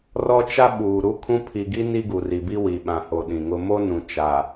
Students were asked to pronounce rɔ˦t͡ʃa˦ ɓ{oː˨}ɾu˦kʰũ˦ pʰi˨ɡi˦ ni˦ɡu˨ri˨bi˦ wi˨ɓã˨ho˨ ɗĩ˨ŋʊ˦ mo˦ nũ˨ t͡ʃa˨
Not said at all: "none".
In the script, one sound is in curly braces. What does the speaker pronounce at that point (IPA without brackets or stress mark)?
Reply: uː˨